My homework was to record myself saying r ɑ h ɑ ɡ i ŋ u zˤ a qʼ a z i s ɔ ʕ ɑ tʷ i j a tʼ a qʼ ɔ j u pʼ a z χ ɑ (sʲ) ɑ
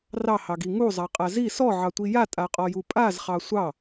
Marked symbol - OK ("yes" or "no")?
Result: no